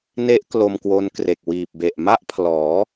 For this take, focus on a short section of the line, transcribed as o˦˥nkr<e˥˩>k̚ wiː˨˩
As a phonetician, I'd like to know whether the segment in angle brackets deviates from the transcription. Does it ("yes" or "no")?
yes